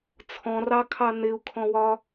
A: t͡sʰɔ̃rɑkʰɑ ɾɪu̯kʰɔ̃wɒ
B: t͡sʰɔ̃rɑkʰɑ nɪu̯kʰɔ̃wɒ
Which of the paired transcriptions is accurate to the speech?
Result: B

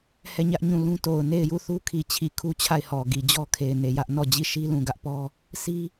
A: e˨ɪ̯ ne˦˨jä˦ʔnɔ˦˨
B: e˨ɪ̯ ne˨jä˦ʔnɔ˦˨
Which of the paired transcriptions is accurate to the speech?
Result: B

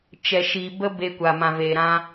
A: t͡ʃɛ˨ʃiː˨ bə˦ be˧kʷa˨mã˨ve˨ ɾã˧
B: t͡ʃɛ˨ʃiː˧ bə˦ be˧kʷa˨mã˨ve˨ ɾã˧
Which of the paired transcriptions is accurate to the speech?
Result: A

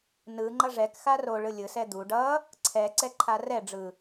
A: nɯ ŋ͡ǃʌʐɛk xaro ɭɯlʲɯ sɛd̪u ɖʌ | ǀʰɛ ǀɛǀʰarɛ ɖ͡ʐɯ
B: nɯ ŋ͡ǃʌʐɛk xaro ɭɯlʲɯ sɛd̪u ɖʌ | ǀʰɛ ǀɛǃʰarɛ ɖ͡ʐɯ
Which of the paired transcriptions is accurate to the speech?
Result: B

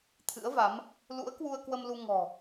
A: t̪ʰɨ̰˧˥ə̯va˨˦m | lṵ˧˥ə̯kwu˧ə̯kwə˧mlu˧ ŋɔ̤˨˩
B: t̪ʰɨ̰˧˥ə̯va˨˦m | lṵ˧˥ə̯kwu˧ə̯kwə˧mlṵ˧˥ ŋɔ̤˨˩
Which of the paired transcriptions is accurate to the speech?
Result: A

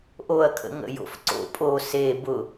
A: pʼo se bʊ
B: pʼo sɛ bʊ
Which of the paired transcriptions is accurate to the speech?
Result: A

